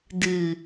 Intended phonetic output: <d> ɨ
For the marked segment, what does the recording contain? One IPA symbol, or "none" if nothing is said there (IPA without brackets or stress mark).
d